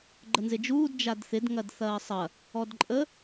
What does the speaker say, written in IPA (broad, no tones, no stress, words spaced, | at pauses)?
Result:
ɡ͡ǃənzɪd͡ʒuːd d͡ʒadθɪd ŋɐdθɐːsˤɐ | ɔdǃʼə